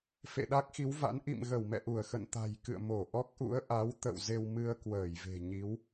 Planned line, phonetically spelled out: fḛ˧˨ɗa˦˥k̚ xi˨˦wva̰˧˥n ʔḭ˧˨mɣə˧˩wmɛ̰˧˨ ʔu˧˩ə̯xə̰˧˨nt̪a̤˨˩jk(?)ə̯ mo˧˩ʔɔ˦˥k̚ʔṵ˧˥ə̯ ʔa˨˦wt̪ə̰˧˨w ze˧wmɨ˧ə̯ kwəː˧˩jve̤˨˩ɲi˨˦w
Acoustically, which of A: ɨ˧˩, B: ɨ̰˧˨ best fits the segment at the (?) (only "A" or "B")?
B